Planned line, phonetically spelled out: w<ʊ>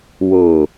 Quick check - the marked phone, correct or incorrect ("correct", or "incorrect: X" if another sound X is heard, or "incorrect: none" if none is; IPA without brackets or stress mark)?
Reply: correct